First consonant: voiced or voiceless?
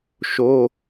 voiceless